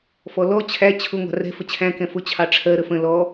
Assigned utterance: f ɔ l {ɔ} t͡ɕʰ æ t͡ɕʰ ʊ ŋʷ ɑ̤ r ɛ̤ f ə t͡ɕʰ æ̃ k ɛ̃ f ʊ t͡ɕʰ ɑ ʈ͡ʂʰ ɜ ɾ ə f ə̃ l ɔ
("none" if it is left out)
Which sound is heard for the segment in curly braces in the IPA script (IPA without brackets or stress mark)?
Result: ɔ